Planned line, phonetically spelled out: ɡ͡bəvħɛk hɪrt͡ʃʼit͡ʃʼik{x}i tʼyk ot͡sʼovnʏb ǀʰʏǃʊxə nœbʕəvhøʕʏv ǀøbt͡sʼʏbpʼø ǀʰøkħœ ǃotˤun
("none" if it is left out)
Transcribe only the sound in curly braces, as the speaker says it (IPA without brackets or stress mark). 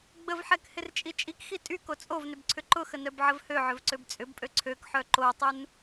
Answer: x